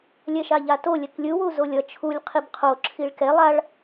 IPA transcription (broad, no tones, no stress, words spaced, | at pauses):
lʲɛʃaʎato lʲɛklʲɯ wuzolʲʌ t͡ʃʰulʲ qʰibqʰo ǁʰiɭkɛ lˠaɭ